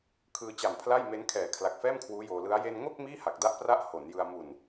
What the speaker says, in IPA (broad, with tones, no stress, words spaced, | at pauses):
kʰɯː˧t͡ɕa˨˩m pʰla˥˩jme˦˥n kʰɛː˨˩kʰla˨˩k̚fɛː˥˩m kʰwuː˦˥joː˧lɯ˦˥a̯ je˧nŋo˥˩k̚ miː˥˩ha˨˩k̚da˦˥ʔpra˦˥ʔ ho˩˦njɯ˧a̯ mu˨˩n